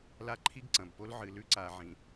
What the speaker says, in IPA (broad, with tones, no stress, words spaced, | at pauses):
la˦ǃʰi˦ɡǀɐ̃˨bpo˦l ʕɨ˨ lʉ˦ǀa˨ʕĩ˨